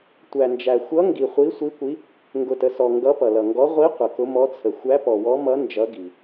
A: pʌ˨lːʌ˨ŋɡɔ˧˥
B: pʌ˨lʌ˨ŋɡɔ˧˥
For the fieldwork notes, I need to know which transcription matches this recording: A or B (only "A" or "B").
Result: B